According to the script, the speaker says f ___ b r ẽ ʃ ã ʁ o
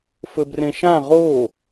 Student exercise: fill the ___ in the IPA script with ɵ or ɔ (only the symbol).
ɵ